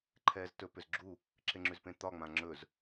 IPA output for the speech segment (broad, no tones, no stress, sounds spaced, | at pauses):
ǃʰ ɛː z t ɵ p ʏ z ɡ͡ǁ u | ǁ e ŋ͡ǁ ʉ z p ẽ t̪ ɒ ŋ͡m ã ŋ͡ǁ ɵ z